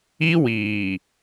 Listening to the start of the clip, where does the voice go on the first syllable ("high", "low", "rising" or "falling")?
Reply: high